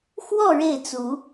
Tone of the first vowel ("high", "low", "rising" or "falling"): falling